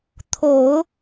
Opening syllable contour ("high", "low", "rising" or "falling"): low